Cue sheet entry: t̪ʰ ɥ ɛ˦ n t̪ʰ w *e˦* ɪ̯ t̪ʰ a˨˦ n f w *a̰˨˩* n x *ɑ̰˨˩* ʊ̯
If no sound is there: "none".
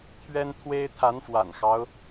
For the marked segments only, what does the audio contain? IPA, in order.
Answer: e˦, a̰˨˩, ɑ˦

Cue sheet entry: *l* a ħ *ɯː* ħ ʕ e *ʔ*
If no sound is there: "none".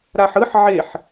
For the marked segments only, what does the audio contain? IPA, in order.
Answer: ɾ, ɯ, ħ

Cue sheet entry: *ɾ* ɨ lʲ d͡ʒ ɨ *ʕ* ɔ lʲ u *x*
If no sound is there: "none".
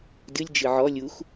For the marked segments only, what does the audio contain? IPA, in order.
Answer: d, ʕ, x

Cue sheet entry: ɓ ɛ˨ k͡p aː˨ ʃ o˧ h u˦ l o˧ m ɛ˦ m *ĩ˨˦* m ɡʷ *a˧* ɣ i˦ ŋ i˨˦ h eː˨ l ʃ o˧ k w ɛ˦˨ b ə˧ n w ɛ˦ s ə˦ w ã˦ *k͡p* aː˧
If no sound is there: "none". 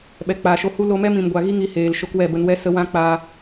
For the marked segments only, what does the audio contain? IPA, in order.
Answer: ĩ˧, a˧, k͡p

